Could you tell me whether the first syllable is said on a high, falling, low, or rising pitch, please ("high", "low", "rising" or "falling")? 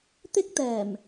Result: high